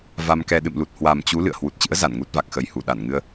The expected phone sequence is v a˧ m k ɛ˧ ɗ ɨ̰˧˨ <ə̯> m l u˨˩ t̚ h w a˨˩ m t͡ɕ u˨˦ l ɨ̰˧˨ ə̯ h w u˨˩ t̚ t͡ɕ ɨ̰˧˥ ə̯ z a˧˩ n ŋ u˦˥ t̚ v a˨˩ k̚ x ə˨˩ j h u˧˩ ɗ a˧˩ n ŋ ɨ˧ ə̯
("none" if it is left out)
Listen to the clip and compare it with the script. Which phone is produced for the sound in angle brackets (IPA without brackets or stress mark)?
none